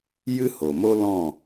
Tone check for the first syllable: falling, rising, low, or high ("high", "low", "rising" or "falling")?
high